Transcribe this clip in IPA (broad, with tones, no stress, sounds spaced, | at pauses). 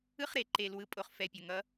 ɯ˦ χ ɾ e˨ ǃ e˨ l w ɯ˨ pʼ o˨ χ f ɛ˨ pʲ ʌ˨ ŋ ʌ˦